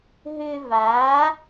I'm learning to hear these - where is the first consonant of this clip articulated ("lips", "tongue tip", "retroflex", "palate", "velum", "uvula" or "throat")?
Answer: throat